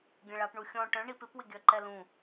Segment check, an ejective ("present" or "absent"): absent